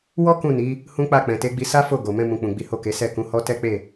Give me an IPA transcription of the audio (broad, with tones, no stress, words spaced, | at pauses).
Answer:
wɔ˦ kũ˦˨ni˨˦ | hũ˦k͡pa˦˨ k͡pɛ̃˨te˨˦ɡ͡bi˧ sa˦ fo˦˨ɡo˨ mɛ̃˧mũ˨k͡pũ˨ ɡ͡bi˨˦ ho˦˨ke˨˦ sɛ˦˨kũ˨˦hɔ˦ tɛ˦k͡pe˦˨